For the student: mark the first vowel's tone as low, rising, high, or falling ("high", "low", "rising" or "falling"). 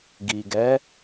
low